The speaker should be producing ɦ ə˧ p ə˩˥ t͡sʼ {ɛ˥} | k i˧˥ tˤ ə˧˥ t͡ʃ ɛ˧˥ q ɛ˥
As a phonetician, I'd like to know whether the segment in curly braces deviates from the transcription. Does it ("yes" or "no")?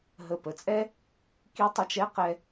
no